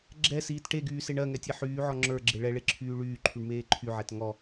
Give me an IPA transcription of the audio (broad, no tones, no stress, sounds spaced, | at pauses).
ɡ͡ǁ ɛ s iː t ʈ e ɡ yː s e ɳ ɜ ŋ ɛ tʲ e ħ yː ʕ ɔ ŋ͡ǁ ə˞ ɡ͡ǁ e ɭ ɛ ɭ e ǁʰ yː ɭ yː ǃʰ y ɳ m eː ǃʰ y ʕ ɛ t ŋ ɔ